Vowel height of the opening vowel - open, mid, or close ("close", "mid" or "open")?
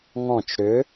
mid